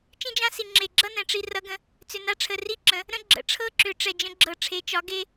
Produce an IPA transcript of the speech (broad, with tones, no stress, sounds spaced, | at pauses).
t͡ʃ ĩ˦ d͡ʒ ã˦ s i˨ ŋ͡ǁ e˨ ɡ͡ǁ ʌ˦ n ɛ̃˨ ʈ͡ʂ i˧ r ʌ˦ ɡ ə̃˧ | t͡s ʏ˨ n a˧ ʈ͡ʂʰ ə˨ r i˦ ǁ ə̃˨˦ | ɾ ə̃˦ ɡ͡ǁ ə̰˨˦ ʈ͡ʂʰ ɤ˦ ǁ ʏ˨˦ ʈ͡ʂ ɛ˨ d͡ʒ ə̃˧ ɡ͡ǁ ɤ˨ ʈ͡ʂʰ e˨˦ t͡ʃ ɒ˨˦ ɡ e˧